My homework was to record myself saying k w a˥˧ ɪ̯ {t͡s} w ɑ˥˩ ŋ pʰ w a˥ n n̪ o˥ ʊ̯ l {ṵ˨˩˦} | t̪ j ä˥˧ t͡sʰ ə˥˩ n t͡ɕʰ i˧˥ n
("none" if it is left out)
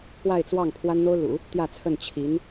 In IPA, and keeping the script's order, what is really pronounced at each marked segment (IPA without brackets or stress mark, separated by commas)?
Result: t͡s, ṵ˨˩˦